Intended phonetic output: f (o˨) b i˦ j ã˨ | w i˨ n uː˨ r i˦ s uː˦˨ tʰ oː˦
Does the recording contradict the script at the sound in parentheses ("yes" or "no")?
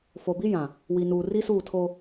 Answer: no